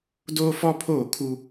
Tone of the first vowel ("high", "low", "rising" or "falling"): high